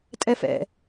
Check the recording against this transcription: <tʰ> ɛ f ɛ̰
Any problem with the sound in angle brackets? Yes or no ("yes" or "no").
yes